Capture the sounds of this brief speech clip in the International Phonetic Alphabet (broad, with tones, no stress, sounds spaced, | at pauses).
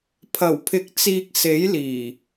pʰ ɐ˨˩ w pʰ ɪ˨˥ k̚ t͡s iː˨ k̚ s e˨˥ j l iː˨˩